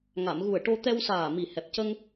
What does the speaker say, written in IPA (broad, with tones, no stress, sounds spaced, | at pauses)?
ŋ a˨˩˨ m ɣ u˨˩ ə̯ ʈ o˧ t̪ ɛ˧ w s aː˨˩ m i˨˩ h ɛ˨˩ p̚ c ə˧ ŋ